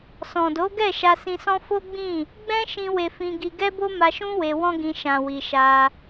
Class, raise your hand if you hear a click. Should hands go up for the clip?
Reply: no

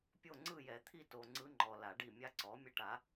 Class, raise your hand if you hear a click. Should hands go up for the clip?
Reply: yes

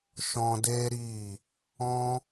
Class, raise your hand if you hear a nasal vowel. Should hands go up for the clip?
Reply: yes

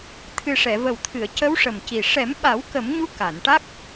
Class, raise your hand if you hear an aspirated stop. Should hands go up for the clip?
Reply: yes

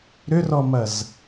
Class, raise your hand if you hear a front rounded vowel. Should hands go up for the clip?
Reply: yes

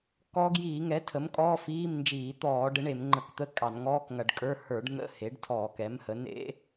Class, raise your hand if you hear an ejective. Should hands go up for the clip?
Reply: yes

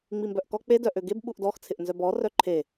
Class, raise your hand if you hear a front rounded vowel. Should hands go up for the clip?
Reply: yes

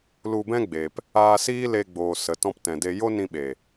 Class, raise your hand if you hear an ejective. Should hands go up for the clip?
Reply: no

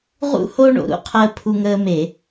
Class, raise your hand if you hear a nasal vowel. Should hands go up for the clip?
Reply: no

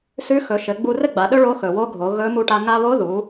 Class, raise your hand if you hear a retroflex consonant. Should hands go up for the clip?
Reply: yes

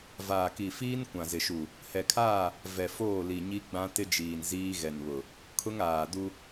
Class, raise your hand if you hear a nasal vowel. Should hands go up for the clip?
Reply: yes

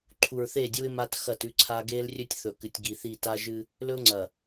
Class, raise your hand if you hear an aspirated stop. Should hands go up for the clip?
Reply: yes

